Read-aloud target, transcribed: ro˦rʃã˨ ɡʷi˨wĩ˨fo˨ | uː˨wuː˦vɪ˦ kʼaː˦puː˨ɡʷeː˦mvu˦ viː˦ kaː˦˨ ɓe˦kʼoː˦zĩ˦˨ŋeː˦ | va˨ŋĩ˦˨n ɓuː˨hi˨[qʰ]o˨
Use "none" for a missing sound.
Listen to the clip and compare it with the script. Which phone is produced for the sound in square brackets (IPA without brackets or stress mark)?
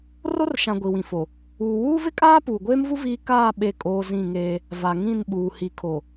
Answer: kʰ